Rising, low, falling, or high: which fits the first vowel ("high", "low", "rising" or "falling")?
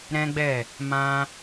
high